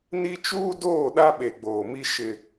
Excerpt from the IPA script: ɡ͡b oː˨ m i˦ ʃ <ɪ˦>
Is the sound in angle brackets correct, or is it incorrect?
correct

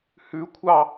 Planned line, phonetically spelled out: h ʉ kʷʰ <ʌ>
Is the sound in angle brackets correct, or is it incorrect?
incorrect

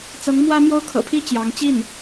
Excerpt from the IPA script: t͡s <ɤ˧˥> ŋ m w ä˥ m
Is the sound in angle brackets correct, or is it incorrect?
correct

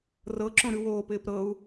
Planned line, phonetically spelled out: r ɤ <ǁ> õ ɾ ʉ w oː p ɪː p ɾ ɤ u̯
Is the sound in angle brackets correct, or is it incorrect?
correct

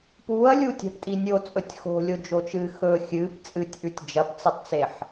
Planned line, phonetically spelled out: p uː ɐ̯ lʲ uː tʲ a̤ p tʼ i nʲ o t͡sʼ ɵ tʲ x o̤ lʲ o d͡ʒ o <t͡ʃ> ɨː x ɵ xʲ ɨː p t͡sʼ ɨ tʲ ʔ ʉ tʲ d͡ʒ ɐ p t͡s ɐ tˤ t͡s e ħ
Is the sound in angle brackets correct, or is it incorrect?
correct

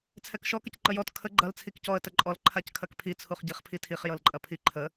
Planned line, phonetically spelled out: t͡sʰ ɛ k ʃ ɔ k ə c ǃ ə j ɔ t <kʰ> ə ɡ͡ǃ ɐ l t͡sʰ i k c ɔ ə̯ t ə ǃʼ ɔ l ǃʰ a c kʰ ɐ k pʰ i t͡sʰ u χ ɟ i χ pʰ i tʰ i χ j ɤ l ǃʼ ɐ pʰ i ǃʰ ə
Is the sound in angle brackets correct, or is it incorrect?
correct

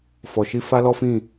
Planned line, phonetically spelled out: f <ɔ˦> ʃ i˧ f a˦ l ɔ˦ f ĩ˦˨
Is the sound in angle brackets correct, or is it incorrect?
incorrect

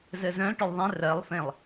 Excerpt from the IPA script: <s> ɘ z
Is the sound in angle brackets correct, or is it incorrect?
incorrect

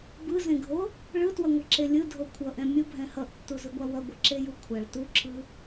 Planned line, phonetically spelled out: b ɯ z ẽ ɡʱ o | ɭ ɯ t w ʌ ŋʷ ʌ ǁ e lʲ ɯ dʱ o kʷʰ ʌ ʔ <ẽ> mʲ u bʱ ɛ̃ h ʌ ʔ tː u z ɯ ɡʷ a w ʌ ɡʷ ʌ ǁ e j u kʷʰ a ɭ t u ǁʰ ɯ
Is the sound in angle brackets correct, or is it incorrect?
incorrect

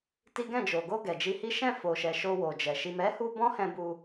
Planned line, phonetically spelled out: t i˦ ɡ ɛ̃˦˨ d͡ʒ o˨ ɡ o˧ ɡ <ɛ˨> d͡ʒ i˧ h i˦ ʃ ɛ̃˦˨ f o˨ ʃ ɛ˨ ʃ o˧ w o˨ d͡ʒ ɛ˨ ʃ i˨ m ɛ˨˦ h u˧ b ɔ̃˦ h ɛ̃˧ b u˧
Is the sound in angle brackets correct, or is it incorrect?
correct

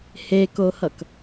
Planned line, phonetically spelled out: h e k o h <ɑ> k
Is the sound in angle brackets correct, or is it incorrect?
incorrect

